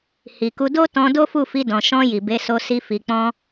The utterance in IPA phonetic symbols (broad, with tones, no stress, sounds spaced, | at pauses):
h i˨ k u˧ d o˦ t ɔ̃˧ d o˦ f u˦˨ f i˧ d ɔ̃˨ ʃ ɔ̃˧ j i˨ b e˨˦ s o˧ s i˧ f i˨ k͡p ɔ̃˧